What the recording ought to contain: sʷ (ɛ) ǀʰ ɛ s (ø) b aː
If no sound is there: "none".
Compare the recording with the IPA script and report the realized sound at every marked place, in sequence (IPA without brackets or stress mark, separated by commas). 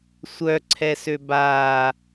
œ, ø